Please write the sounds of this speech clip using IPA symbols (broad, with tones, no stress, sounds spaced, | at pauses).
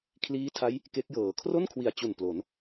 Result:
kʰ l iː˦˥ tʰ a˦˥ j | k e˦˥ k̚ j ɤː˨˩ kʰ r o˥˩ n kʰ w i˨˩ a̯ t͡ɕ u˨˩ n p l o˩˦ n